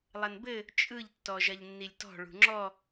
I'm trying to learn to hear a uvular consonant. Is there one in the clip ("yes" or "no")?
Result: no